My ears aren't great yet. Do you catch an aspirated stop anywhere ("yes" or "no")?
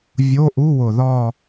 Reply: no